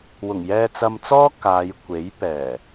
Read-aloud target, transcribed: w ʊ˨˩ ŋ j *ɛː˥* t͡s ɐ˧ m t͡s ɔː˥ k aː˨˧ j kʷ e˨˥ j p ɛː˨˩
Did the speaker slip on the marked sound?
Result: yes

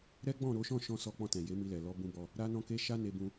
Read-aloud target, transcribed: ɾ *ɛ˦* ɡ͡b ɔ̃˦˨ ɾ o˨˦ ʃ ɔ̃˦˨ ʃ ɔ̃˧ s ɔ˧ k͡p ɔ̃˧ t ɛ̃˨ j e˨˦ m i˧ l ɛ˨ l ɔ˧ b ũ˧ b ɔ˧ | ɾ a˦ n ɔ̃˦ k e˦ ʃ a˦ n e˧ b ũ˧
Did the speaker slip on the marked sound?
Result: no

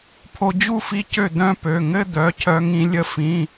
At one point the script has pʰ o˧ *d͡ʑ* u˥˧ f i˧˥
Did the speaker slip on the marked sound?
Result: no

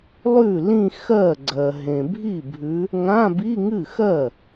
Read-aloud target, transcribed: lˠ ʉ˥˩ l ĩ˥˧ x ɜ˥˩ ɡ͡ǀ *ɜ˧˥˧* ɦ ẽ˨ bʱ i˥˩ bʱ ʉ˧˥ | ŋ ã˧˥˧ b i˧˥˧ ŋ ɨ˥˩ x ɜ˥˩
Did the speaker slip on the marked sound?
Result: yes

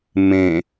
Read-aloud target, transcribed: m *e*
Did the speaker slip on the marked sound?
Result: yes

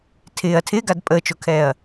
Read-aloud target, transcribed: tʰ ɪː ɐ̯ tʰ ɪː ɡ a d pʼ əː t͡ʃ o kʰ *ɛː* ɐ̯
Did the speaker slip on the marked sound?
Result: no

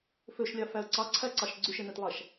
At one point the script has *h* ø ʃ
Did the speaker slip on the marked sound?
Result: yes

